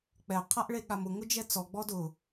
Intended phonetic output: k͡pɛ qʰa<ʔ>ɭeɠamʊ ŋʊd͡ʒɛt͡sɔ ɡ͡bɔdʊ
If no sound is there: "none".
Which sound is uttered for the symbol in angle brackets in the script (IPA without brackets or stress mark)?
ʔ